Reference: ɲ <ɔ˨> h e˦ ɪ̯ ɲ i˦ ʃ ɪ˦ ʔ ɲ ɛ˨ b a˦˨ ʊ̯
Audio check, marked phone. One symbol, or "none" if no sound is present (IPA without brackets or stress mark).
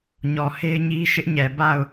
ɔ˨